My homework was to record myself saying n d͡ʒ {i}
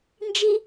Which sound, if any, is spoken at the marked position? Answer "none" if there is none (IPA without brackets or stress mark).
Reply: i